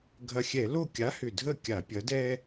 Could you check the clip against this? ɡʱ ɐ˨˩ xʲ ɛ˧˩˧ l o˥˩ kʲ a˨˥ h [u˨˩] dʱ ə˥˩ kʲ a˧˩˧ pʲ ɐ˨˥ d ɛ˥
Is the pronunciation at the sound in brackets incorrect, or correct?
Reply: incorrect